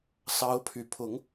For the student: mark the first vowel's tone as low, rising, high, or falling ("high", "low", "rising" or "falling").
rising